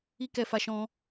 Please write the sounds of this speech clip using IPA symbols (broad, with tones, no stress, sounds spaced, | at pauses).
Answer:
i˦ k ɛ˧ f a˧ ʃ ɔ̃˧